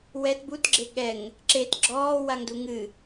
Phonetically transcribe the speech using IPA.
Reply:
w ɛ t b u t ɡ͡ǁ e ɠ ɛ ŋ | ǁ e t ɡ͡ǁ ɔː w a ŋ d u ŋ ɨ

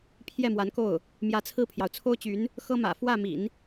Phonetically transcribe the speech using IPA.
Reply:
pʰ j ɛ˥˩ m w a˧˥ n k o˥˩ ʊ̯ | m j ä˧˥ t͡sʰ ɹ̩˥˩ pʰ j ɑ˩ ʊ̯ t͡sʰ o˥ ʊ̯ t͡ɕ y˧˥ n | x ɤ˥ m ä̰˨˩ f w ä˥˩ m ḭ˨˩˦ n

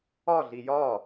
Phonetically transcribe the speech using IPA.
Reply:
ɒ ɮ i j ɒ

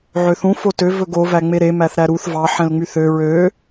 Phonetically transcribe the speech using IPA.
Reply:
ʕ ø θ ũ f o t ø v ɵ ɡ o v æ ŋ͡m e ɾ e m æ θ ɾ æ ɾ u θ v ɑ ħ ɛ̃ l ŋ͡m y θ ø ɹ ø

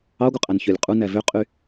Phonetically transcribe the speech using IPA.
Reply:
ɑ ɡʷ ɯ qʼ æ n ç ø lʲ qʼ u n æ v ø qʼ y

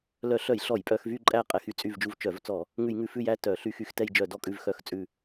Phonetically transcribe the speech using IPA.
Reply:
l œ˧˩˧ ɬ œ˧˩˧ j ɬ ɔ˧˩˧ j pʼ œ˧˩˧ x v y˦˨ ǃʼ æ˦˨ qʼ ɛ˧˩˧ x y˧˩˧ t͡sʼ y˦˨ v d͡ʒ u˦˨ v t͡ʃ œ˧˩˧ v t͡s ɔ˧˩˧ | ŋ ʉ˧˩˧ j ŋ ʉ˧˩˧ f ʉ˦˨ j æ˦˨ t œ˧˩˧ ɬ y˧˩˧ x y˧˩˧ x t ɛ˦˨ j d͡ʒ œ˧˩˧ d ɔ˦˨ kʼ ʉ˦˨ v x œ˦˨ x t͡sʼ ʉ˦˨

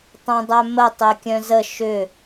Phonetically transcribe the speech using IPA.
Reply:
tˤ œ̃ dˤ œ m ə tˤ e kʲ œ̃ z ə ʃ ʏ

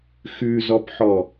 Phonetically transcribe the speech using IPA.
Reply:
x ʉ z ɔ p ħ ɔ

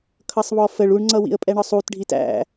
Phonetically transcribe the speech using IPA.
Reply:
kʰ ʌ sˤ β ɔ f ə ɭ u ɳ ŋ͡ǀ ʌ w ḭ ə̯ pʼ ɛ ɳ ɒ sˤ u t ɖʱ i t æ̰

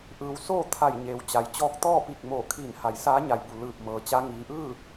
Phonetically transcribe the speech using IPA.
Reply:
ʔ ɯː˩˧ w s oː˥˨ t̪ʰ a˧˩ j ɲ eː˩ w t͡ɕ a˩˧ j t͡ɕ ɔː˧ k̚ t̪ ɔː˥˨ p i˧˩ k̚ m oː˧˩ kʰ iː˧˩ n h a˩ j s aː˧˥ ɲ a˩ j b u˩ l ɯː˧˩ p̚ m ɤː˩ t͡ɕ a˧˥ ŋ iː˩˧ ʔ ɯː˥˨

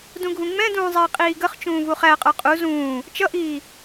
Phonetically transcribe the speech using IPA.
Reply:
d ũ ɡʱ ũ ŋ͡m ɛ̃ d ũː zˤ ɛ i̯ qʼ iː ɡ ə χ t͡ʃ ũː v u χ æ qʼ ə˞ qʼ u z ũː | t͡ʃ ʌ ʔ iː

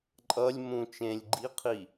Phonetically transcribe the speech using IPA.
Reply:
ǃʼ ʌ lʲ m ũ t͡ʃ ẽ lʲ ɡ͡ǃ i qʰ i

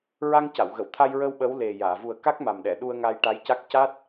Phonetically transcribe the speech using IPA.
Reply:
ɹ a˧ ŋ c a˨˩˨ w ɣ ə˨˩˨ w t̪ʰ a˧ j ɹ ə˧ w ɓ ə˧˥ w l e˨˩ j aː˨˩˨ v u˨˩ ə̯ k a˦˥ k̚ m a˨˩ m ɗ ɛ˨˩˨ ɗ u˧ ə̯ ŋ a˧ j ʈ a˧˥ j c a˦˥ k̚ c a˦˥ t̚

